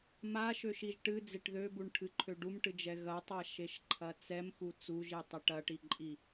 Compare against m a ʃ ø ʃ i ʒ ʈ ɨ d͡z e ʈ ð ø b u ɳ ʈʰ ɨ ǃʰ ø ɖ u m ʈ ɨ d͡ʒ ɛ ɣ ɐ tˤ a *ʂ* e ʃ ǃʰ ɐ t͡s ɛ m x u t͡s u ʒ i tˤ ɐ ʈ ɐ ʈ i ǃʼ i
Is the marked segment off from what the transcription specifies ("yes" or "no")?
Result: yes